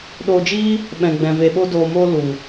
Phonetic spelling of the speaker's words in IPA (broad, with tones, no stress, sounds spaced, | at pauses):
ɗ oː˧ d͡ʒ iː˦ | ɓ ɛ̃˨ ɡ͡b ɛ̃˨ v e˧ ɓ o˦ d oː˧ m oː˦ l u˨